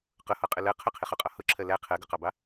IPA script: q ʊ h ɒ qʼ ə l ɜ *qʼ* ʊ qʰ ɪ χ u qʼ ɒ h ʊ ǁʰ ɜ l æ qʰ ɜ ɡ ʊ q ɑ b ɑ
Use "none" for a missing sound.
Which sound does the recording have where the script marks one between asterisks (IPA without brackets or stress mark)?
qʰ